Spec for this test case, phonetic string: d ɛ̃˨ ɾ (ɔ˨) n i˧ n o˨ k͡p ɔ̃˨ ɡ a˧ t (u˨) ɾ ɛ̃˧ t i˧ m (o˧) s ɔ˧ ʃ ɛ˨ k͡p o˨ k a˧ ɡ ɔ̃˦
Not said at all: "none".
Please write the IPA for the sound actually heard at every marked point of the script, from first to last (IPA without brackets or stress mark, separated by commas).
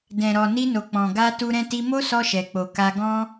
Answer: ɔ˨, u˧, o˦